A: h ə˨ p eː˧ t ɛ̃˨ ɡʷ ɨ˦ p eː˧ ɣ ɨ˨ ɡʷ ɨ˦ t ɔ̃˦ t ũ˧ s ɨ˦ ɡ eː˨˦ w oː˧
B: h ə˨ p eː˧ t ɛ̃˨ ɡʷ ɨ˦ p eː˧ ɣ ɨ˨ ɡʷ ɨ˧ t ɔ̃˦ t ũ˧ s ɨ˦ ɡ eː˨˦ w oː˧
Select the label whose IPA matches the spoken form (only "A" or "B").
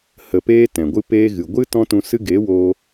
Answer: A